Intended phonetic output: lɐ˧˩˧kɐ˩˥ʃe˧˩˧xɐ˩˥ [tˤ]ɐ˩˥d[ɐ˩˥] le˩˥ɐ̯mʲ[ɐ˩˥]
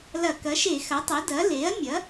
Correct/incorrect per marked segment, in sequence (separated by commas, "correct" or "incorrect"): correct, correct, correct